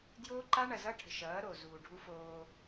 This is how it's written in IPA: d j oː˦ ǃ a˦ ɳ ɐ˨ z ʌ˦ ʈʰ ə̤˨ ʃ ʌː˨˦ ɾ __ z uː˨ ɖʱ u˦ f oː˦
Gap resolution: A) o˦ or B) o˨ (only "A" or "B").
B